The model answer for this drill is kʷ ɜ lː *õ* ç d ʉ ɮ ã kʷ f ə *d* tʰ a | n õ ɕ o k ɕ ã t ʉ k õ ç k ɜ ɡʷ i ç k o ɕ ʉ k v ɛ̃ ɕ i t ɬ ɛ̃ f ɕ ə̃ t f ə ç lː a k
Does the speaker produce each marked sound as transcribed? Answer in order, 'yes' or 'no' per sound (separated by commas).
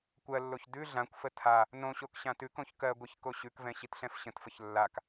no, no